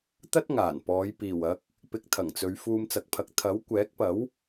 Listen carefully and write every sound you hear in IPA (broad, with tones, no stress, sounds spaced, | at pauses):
t̪ ɐ˥ t̚ ŋ aː˨˩ n p ɔː˨˧ j p iː˨˩ w ɐ˨˥ k̚ | p ɪ˧ k̚ t̪ʰ ɐ˨˩ ŋ t͡s ɵ˨˧ ɥ f uː˧ m t͡s ɐ˨˥ k̚ pʰ ɐ˨˥ k̚ t̪ʰ ɐ˨˥ w kʷ ɛː˨˥ k̚ p ɐ˨˥ w